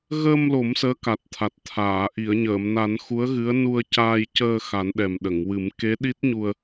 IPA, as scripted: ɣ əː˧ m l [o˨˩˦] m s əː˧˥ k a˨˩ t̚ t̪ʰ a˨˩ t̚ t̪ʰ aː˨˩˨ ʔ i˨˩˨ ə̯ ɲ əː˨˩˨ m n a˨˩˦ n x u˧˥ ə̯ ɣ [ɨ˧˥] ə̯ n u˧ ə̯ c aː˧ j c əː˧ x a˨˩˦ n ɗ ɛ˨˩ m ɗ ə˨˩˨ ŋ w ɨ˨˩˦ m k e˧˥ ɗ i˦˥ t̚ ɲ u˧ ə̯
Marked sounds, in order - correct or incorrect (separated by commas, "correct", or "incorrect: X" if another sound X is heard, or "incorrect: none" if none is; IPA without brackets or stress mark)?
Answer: correct, correct